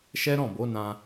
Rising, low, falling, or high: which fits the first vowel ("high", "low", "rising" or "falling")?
high